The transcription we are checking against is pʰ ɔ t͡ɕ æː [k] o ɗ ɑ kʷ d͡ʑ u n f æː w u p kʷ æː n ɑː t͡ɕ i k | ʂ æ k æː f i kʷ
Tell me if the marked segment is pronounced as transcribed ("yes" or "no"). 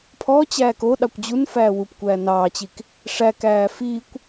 yes